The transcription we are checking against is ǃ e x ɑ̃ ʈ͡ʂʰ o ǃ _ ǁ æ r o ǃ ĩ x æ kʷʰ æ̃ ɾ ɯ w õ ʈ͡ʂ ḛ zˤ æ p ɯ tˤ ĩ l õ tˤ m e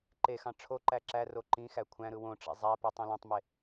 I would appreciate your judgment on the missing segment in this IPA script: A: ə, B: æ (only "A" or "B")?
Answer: B